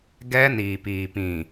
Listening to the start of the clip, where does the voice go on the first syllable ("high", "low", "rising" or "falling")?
high